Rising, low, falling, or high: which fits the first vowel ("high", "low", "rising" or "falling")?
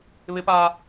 high